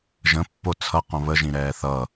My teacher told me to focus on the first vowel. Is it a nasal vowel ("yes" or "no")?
yes